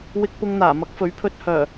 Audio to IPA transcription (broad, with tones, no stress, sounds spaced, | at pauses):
w ɪ˧ k̚ p ʊ˧ ŋ n̪ aː˨˩ m ɐ˨˥ k̚ f ɵ˨˥ ɥ pʰ ɵ˧ t̚ h œː˨˩